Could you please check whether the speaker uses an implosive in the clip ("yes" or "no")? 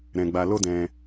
no